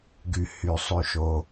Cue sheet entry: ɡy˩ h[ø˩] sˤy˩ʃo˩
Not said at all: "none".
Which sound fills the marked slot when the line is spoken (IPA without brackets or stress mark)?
y˩